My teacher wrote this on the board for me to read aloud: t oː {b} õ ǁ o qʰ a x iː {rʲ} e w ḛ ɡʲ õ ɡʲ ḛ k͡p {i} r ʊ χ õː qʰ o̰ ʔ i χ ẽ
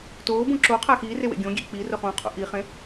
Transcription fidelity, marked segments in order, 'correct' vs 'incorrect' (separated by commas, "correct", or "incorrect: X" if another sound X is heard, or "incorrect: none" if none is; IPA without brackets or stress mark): correct, incorrect: r, correct